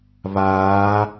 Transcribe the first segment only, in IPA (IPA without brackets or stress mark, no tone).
β